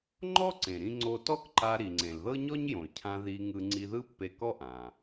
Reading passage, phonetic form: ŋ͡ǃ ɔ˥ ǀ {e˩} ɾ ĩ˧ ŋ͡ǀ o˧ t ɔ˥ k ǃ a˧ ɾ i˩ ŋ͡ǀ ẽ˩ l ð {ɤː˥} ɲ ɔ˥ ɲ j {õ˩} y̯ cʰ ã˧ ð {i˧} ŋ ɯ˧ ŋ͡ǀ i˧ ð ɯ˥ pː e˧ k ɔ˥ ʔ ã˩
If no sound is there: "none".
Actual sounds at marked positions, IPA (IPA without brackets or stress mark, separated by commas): ẽ˩, ɤ˥, õ˩, i˧